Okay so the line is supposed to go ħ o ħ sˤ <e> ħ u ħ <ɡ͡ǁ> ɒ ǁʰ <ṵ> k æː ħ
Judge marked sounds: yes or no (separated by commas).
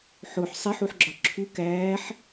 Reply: yes, yes, no